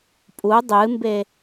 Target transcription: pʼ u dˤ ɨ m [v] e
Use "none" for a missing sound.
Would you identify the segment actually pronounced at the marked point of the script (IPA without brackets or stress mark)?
b